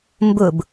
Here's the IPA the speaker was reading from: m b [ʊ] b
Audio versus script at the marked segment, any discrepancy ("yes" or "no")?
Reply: no